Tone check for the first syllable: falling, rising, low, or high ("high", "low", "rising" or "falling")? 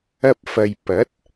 high